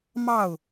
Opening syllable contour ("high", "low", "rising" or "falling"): falling